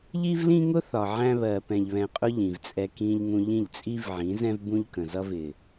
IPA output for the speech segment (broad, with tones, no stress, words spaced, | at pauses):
ʎi˦vlĩ˦ŋʊ˦ θɒ˨ʕæ̃˦βɜ˨ pɛ̃˨ʎβɛ̃˨qʼʊ˦ ʎĩ˨vt͡sʼɛ˦ kĩ˦ʎŋũ˦ ʎĩ˦˨ʎt͡sʼi˦vʕĩ˨˦zɛ̃˦v bũ˦ʎkə̃˨ zʌ˦vɪ˨